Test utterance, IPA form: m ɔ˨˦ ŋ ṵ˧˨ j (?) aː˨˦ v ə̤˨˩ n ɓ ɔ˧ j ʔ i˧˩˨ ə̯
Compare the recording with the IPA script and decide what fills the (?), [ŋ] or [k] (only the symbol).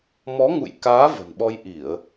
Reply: k